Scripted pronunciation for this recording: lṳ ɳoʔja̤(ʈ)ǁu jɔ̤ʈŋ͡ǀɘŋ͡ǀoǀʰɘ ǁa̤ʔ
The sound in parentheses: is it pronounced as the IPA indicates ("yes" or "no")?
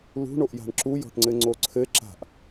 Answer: no